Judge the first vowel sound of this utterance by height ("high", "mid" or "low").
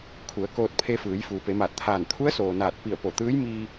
high